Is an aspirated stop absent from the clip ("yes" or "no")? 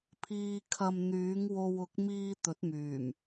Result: no